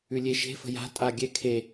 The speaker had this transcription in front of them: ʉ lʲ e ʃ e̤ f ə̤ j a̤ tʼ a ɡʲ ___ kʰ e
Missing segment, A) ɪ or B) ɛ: B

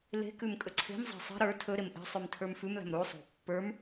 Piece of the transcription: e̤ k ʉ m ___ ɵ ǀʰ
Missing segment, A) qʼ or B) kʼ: B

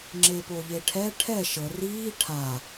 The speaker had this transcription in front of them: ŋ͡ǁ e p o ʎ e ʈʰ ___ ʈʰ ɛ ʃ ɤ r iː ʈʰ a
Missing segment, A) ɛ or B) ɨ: A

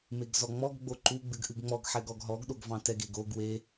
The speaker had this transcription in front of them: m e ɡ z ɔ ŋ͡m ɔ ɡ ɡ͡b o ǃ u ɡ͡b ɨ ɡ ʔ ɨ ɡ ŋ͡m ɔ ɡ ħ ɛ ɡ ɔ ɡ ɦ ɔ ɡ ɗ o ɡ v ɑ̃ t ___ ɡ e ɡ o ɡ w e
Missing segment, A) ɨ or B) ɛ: B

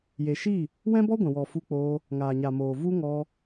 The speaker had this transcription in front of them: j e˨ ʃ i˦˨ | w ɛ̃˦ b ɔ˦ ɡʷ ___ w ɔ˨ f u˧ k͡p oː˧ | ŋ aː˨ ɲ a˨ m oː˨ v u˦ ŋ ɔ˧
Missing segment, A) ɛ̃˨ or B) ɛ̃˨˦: A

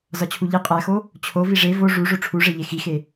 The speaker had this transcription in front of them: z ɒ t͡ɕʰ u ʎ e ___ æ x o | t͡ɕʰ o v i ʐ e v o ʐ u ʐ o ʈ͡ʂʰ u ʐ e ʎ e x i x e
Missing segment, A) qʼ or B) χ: A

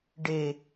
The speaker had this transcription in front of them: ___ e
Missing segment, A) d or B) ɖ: B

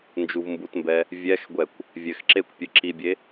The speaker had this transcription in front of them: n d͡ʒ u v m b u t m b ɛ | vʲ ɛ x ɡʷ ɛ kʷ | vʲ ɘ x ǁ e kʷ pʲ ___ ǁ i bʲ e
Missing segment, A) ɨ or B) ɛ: A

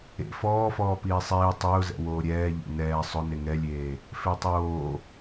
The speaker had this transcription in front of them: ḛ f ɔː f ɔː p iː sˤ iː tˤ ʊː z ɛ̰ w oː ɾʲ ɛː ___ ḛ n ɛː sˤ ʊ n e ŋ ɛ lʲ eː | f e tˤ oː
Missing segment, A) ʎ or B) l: A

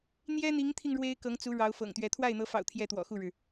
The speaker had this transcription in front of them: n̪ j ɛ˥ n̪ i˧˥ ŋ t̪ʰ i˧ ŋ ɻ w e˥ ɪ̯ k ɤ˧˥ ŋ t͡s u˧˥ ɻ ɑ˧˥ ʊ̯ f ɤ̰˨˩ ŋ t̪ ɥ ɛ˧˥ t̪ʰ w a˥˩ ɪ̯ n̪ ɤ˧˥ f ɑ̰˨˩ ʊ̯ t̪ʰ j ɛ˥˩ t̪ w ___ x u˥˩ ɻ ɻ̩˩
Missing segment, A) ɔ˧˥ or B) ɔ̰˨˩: B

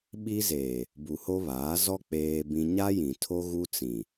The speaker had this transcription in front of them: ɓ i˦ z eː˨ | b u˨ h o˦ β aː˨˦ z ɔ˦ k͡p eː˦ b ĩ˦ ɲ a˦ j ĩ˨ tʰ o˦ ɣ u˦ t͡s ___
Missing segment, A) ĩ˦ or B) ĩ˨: B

